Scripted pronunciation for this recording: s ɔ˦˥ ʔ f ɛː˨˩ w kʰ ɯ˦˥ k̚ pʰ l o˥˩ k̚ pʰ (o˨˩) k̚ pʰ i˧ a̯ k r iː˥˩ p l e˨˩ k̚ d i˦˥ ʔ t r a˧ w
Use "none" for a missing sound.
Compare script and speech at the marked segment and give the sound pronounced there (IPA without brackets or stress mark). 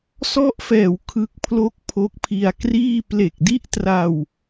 o˦˥